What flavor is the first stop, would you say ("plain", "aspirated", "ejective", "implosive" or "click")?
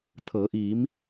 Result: aspirated